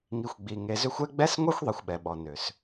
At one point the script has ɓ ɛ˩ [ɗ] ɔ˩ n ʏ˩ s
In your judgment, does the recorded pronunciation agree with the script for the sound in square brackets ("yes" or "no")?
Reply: no